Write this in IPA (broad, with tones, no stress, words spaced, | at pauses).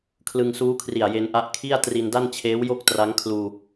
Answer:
kʰlɯ˧ŋsuː˦˥kʰri˨˩a̯ je˧nʔa˦˥ʔ kʰi˥˩a̯ tri˧nda˥˩nt͡ɕʰeː˦˥wjo˥˩k̚ tra˦˥ŋkʰluː˧